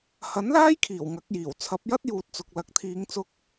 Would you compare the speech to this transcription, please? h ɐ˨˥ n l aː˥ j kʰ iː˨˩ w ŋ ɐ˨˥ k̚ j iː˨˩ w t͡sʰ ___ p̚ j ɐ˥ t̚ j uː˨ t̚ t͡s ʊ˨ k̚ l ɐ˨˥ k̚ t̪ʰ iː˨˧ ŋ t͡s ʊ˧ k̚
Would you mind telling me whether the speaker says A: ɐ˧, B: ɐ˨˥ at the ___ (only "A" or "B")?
B